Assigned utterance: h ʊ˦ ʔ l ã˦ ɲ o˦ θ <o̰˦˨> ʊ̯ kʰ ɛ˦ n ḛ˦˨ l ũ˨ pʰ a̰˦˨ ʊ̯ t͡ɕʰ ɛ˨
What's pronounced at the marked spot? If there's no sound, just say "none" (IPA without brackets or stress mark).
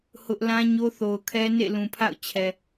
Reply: o˨